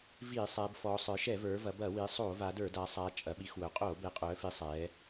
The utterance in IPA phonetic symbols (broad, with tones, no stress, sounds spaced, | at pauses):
v iː˧˩˧ sˤ ɛː˩˧ b f ɔː˩˧ sˤ ə˞˩˧ ʃ ɛ˧˩˧ v ə˞˩˧ v ɐ˩˧ b ɐ˧˩˧ w i˩˧ sˤ o˧˩˧ v a˩˧ d ə˞˧˩˧ d a˩˧ sˤ a˩˧ t͡ʃʼ ɐ˩˧ ɓ i˩˧ x w œ˩˧ qʼ oː˧˩˧ b ɛ˩˧ qʼ œː˩˧ f i˩˧ sˤ ɛː˩˧